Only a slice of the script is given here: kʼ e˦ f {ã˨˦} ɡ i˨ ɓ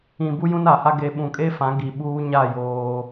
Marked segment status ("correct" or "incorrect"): correct